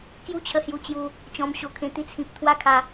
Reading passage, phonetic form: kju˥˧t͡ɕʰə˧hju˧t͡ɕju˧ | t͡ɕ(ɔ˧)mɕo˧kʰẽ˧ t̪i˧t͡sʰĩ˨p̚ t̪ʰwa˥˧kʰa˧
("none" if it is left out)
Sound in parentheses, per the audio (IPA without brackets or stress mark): ɔ̃˧